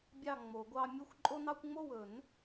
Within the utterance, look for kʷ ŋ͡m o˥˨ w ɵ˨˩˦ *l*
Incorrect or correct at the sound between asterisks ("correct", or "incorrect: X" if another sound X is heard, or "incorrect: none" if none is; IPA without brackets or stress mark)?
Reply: incorrect: n